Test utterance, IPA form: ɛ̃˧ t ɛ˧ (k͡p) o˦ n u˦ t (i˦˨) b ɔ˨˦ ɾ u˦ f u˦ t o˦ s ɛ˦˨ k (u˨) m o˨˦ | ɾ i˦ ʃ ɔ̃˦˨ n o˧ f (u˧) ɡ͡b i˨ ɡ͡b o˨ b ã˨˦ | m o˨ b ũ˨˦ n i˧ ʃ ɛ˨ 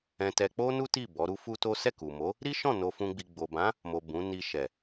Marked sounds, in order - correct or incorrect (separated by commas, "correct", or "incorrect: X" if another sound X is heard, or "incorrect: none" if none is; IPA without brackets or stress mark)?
correct, correct, correct, incorrect: ũ˧